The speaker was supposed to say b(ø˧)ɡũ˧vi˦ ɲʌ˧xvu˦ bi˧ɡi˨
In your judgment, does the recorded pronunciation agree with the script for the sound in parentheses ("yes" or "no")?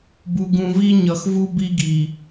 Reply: no